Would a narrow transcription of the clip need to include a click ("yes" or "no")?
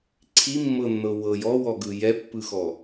yes